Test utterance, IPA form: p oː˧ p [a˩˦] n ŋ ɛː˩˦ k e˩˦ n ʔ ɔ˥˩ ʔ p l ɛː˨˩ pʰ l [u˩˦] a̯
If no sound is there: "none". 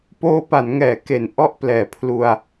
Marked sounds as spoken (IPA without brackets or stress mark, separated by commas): a˩˦, u˧